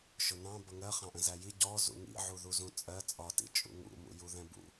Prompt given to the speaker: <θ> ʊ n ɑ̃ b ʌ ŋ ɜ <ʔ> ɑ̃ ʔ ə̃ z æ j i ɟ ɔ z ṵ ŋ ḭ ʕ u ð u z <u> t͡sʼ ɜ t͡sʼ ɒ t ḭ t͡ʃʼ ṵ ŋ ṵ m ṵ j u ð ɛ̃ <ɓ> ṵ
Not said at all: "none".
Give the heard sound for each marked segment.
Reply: ʃ, χ, ũ, b

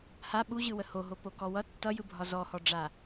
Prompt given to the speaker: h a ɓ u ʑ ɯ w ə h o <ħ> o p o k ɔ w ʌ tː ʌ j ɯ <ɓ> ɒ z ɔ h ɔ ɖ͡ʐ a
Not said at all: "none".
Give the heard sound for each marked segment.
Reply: ɦ, bʱ

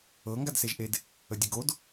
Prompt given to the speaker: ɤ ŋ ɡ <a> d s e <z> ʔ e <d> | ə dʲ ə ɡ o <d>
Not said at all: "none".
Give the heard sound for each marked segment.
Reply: a, ʒ, d, d

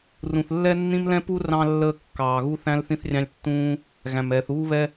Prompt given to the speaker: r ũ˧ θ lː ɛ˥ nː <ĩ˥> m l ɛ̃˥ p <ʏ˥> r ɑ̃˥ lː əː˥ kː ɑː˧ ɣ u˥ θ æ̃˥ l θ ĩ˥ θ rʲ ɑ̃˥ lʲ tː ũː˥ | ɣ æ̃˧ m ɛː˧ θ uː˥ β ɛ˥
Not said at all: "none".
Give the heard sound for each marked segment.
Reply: ĩ˥, u˥

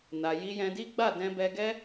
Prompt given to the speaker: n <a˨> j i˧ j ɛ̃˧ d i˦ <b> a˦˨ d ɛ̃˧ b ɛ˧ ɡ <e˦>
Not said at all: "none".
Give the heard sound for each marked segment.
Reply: a˨, ɡ͡b, ɛ˦

